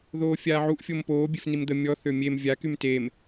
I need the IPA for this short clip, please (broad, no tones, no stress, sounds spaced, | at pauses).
ð oː fʲ aː ʕ u ʔ fʲ o m p oː bʲ e f n i m d̪ ə mʲ ɔ θ ø mʲ e m vʲ a k y m t e m